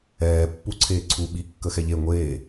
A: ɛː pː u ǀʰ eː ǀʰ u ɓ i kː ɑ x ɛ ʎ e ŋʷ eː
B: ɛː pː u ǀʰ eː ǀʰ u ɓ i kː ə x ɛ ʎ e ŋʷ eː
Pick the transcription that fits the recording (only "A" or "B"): B